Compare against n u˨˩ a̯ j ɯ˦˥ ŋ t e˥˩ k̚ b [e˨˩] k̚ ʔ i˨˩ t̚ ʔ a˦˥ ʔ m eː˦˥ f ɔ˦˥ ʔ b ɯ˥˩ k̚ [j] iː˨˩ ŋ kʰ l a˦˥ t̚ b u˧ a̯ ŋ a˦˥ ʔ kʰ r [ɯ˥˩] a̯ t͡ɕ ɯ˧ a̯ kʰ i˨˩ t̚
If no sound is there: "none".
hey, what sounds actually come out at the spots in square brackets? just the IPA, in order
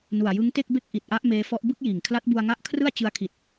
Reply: e˥˩, j, ɯ˥˩

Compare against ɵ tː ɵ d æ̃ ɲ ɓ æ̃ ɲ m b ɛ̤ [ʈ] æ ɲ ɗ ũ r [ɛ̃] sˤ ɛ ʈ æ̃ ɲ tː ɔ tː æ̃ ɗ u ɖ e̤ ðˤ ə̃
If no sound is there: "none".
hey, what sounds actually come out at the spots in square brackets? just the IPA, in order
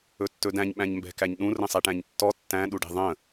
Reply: k, ə̃

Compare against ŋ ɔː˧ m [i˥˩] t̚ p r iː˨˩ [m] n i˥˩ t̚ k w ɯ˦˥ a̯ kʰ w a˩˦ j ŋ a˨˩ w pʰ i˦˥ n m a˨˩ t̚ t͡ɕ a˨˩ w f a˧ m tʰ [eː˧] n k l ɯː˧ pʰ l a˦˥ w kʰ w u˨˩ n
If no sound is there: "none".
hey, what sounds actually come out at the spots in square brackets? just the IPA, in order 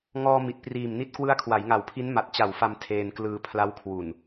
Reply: i˨˩, m, eː˧

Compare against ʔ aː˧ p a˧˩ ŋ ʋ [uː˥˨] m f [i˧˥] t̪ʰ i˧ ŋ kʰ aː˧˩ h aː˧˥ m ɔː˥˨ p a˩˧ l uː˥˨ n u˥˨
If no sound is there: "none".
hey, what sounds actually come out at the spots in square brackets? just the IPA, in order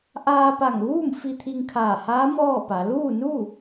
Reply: uː˥˨, i˧

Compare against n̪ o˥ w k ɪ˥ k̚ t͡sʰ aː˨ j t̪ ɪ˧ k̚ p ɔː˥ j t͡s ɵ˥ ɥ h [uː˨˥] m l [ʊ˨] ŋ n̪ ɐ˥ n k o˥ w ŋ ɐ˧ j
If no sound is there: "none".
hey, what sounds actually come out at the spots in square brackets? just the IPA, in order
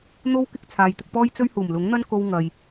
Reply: uː˨˩, ʊ˨˥

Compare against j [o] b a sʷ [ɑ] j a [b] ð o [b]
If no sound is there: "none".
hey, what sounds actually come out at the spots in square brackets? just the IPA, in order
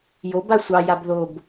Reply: o, ɑ, b, b

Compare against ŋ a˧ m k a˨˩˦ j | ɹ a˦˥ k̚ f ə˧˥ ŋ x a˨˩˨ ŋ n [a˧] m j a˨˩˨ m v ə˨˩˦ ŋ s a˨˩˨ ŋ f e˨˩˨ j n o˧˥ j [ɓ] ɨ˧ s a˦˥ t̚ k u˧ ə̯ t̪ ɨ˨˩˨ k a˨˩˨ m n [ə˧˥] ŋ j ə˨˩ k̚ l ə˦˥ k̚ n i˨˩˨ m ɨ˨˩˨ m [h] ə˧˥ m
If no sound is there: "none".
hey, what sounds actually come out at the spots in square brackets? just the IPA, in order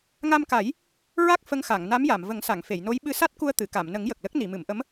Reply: a˧˥, ɓ, ə˨˩˦, ʔ

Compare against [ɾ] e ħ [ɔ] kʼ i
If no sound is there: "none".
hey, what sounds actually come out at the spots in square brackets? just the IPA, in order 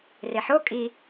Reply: r, o

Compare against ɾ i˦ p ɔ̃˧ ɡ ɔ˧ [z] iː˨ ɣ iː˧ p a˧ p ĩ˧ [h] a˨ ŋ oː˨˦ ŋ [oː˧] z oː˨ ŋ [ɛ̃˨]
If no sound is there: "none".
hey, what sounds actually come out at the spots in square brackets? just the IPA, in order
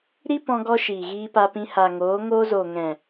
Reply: ʃ, h, oː˧, ɛ̃˨

